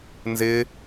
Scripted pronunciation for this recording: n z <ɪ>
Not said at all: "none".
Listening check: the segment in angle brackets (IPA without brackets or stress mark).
ɪ